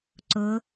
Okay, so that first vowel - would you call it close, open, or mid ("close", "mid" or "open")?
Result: close